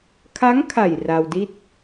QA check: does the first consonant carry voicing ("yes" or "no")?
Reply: no